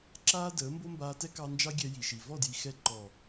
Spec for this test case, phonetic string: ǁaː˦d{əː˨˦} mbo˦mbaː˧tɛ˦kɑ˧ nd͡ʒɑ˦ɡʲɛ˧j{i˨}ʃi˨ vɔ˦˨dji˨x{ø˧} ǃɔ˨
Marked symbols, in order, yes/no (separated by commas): yes, yes, no